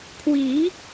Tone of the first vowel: rising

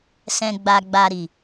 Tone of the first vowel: low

